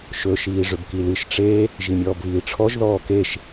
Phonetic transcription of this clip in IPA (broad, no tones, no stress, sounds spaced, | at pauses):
ʃ ɵ ʃ iː ʐ ʏ b k i l ɨ ʃ ʈ͡ʂ e | ʒ i mʲ ɔː b β iː ʈ͡ʂʰ ɔ ʒ ð ɔː k e ʃ